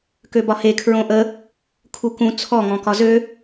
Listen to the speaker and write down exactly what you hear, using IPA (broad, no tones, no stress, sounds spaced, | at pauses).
k ø b ɒ h e kʰ ɹ õ ʔ ə | kʰ u k ũ t͡sʰ ɔ ŋ ɔ̃ k ɒ z ø